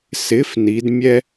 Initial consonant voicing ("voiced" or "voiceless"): voiceless